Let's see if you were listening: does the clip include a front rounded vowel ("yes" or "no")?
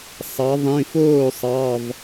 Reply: no